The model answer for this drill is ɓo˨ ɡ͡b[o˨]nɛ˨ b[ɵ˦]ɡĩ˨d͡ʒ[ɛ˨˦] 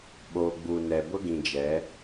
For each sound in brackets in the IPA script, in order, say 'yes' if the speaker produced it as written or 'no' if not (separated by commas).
no, no, yes